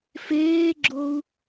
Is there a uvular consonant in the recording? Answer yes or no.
no